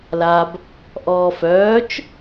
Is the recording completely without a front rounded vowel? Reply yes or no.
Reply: no